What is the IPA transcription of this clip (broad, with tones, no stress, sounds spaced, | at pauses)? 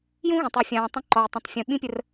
j ũ˥ ɣ ə̃˩ tˤ u˩ fʲ ãː˩ tˤ ə̃˦ ǃ ɔ˩ j tˤ ə̃˩ tˤ fʲ ũ˩ ɓ ĩ˦ pʲ ə˨ r